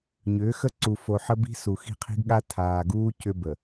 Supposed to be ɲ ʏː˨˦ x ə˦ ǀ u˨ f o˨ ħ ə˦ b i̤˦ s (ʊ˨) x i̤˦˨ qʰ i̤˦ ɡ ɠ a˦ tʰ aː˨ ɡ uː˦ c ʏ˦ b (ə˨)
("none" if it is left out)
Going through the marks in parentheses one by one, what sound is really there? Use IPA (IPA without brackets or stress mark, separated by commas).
u˨, ə˨